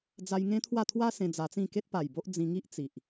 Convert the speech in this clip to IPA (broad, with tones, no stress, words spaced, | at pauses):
d͡za˧jŋẽ˦t̪ʰwa˥˧ t̪ʰwa˦sẽ˧ d͡za˧t͡sĩ˥˧ ke˦t̚pa˨˩jbo˦ʔ d͡zĩ˧ŋi˦ʔt͡si˨ʔ